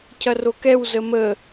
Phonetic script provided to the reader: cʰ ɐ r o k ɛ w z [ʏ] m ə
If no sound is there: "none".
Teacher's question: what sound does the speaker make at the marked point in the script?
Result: ə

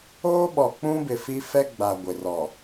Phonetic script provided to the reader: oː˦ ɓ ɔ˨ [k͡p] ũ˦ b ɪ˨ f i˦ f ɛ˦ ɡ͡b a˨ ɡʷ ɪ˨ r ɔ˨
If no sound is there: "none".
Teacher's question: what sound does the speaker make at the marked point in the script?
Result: k͡p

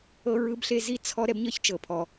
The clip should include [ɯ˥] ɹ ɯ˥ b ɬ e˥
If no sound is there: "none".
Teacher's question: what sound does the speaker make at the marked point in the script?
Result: ɤ˥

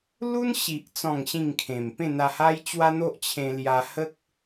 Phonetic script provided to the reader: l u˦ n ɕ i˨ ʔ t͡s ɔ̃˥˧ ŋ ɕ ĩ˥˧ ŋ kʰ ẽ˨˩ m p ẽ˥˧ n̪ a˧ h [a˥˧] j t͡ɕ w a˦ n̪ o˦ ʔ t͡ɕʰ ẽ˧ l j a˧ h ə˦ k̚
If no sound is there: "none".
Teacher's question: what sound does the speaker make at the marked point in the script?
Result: a˦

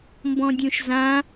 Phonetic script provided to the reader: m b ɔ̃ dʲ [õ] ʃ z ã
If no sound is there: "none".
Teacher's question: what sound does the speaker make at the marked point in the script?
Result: õ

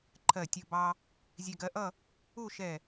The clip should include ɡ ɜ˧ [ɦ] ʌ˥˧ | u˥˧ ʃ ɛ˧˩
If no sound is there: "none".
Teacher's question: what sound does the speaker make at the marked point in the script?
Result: ʔ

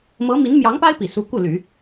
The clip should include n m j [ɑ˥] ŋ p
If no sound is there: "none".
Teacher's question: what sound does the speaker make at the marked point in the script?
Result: ɑ˧˥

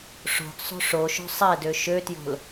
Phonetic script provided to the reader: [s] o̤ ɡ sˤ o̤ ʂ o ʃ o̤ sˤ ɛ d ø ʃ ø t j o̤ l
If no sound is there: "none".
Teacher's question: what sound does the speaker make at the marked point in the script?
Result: ʂ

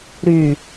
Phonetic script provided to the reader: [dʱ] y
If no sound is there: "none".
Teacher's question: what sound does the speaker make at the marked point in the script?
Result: ɾ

